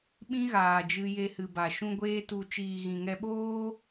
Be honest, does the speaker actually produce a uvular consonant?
no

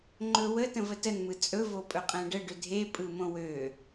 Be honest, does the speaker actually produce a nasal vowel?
yes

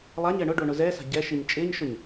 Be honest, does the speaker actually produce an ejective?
yes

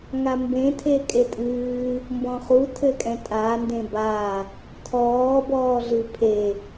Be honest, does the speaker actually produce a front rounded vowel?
no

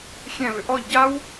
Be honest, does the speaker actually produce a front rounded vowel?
yes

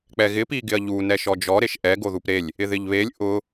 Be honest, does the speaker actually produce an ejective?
no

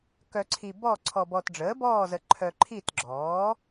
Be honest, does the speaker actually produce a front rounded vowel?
yes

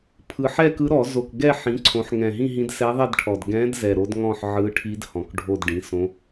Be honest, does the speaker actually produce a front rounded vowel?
no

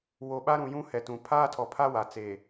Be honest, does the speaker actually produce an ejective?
no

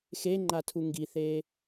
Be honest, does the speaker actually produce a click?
yes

